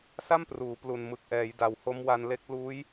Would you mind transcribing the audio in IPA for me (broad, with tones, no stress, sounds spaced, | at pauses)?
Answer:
s a˥˩ m p r uː˩˦ p l u˨˩ n m ɯ˨˩ k̚ ʔ ɛː˩˦ j d a˨˩ w h o˦˥ m w a˧ n l e˦˥ k̚ l uː˦˥ j